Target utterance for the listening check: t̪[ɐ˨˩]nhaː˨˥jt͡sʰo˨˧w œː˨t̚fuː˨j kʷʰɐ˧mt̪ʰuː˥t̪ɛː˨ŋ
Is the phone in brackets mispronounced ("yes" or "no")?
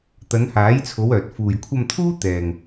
yes